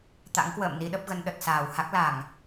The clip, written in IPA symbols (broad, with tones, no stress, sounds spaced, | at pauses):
t̪ a̰˧˥ ŋ k w ə̰ː˧˨ m n i˧ ɗ ə˦˥ p̚ ɣ ə˧ n ɗ ə˨˩ t̚ s aː˧˩ w h a˦˥ k̚ l a˧˩˨ ŋ